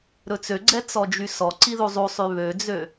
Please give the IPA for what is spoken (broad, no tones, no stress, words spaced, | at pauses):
ɾɵt͡søɡ͡ǀɛ t͡sɔd͡ʒysɔǀi ðuzˤusˤy βød͡zø